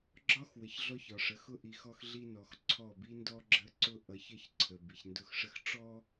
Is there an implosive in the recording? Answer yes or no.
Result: no